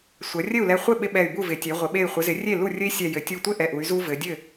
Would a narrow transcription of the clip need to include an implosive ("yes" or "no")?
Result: yes